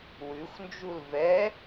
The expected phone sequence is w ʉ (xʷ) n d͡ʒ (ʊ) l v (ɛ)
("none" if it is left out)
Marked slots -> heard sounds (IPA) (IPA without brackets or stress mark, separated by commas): xʷ, u, ɛ